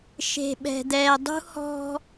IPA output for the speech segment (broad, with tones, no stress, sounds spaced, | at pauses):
ʃ e̤˨ ɓ ɛ̤˨ d̪ ɛː˨ dˤ ṳ˦ h ɔ̤˦